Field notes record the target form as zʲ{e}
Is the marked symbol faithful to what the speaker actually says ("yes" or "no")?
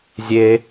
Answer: yes